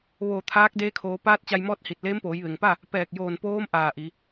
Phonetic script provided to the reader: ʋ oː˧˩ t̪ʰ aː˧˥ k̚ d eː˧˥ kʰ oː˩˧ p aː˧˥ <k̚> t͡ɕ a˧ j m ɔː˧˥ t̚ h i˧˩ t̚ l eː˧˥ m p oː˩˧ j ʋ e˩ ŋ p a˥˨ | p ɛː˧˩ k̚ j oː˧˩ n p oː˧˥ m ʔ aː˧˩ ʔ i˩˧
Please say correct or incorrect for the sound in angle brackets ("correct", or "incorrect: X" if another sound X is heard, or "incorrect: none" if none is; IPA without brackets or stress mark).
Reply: incorrect: t̚